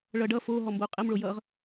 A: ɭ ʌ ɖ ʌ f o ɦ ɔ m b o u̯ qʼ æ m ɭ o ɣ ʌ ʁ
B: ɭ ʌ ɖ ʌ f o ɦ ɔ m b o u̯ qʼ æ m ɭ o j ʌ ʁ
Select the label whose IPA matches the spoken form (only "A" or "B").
B